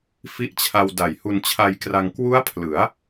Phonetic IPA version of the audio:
f i˦˥ ʔ t͡ɕʰ a˧ w d a˨˩ j h u˧ n t͡ɕʰ a˧ j k r a˧ ŋ k w u˦˥ a̯ pʰ l ɯ˩˦ a̯

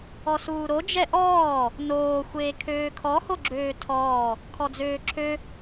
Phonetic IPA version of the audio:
ɔ s uː ɾ o d͡ʒ ɛ ʔ ɔː | n oː xʷ eː kʰ øː kʰ ɔ h o ɡ͡ǁ øː tʰ ɔː | kʰ ɔ d͡z øː ǁʰ ø

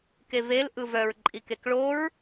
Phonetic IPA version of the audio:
k e v e l ʔ ɯ v œ ɹ ǃʼ i k e k ɭ o ɹ

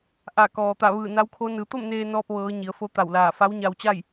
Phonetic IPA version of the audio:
ʔ a˧˩ k ɔː˩ t̪ a˧˩ ʋ ɯː˧˩ n a˧˥ w kʰ o˧˥ n ɯː˩˧ t̪ o˥˨ m n eː˧ n ɔː˧ p̚ ʋ ɤː˩˧ ɲ i˩˧ ə̯ f o˧˥ t̪ a˧˩ w l aː˧˩ f a˧˥ w ɲ a˧ w t͡ɕ a˥˨ j

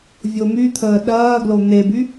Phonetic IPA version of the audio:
vʲ o m y t̪ʰ əː ɗ ɐː ɡ l o n̪ e b y

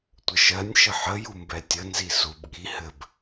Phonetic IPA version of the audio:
tʷ ə ʃ ɜ nʲ ʃ ə ħ ə j u m b ɛ tʲ ə n z i s u b ɠ i h ɘ b

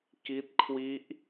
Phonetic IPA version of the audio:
k i˦˥ t̚ kʰ w i˦˥ ʔ

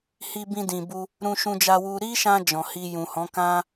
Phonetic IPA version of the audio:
h i˧ b ĩ˧ d ĩ˨ b u˧ | ɾ ũ˧ ʃ ũ˧ d͡ʒ a˧ w u˧ ɾ i˦ ʃ ã˧ d͡ʒ ɔ̃˨ h i˧ j ũ˨ h ɔ̃˨˦ k ã˦

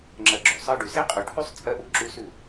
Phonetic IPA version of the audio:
ŋ͡ǁ ɜ˧ ɡ͡ǁ ʉ˨ sˤ ɜ˧ ɖ ʉ˨ s e˦ qʼ ʉ˨ ʈʰ ʉ˦ sˤ t͡sʼ ɜ˦ ʔ u˧ ǁ ʉ˦ s ʉ˦˨

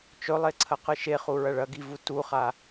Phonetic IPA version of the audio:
t͡ʃ ɵ lˠ e ǀʰ ɐ q ɨ ʃ e χ u ɹ ɐ ɭ ɐ ɡ i v u t u χ a

